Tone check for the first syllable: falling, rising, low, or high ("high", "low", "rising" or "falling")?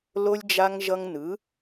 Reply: high